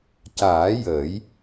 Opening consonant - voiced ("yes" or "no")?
no